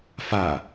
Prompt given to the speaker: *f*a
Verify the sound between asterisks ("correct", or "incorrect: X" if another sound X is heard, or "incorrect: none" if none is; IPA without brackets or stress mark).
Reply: correct